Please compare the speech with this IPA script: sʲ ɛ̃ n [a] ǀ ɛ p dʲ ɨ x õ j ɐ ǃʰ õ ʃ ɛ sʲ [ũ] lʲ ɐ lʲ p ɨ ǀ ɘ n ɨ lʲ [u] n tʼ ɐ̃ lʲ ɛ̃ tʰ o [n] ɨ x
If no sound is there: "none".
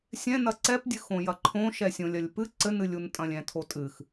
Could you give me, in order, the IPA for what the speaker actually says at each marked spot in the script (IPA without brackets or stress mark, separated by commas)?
ɐ, õ, u, tʼ